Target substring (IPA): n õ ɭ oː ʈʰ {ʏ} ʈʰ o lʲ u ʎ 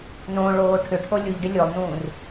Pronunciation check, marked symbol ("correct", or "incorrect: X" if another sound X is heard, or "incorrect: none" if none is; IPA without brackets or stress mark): correct